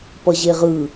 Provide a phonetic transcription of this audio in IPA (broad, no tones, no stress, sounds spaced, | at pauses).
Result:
p ʌ ʑ e ʁ ɯ